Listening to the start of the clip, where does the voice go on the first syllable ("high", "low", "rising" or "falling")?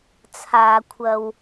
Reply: low